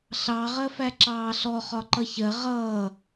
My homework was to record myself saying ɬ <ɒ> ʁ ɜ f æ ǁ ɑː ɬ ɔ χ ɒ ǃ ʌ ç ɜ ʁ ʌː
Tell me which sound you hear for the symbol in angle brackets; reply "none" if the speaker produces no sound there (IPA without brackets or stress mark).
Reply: ɑ